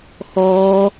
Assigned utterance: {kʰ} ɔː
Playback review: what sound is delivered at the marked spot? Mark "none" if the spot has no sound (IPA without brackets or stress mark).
x